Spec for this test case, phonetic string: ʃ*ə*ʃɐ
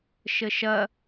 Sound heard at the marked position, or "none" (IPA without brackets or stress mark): ə